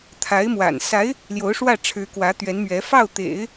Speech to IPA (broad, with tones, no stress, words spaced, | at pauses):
t̪ʰa˧˥ɪ̯mwa̰˨˩n sa˧˥ɪ̯ | ljo˧˥ʊ̯ʂwä˥˩ʈ͡ʂʰɻ̩˧˥ kwä˧˥t̪ɥɛ˧˥nmɥɛ˧˥ fɑ˥˩ʊ̯t̪ḛ˨˩˦ɪ̯